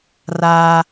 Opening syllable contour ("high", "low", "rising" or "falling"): high